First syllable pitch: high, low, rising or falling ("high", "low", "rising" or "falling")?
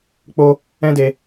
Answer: high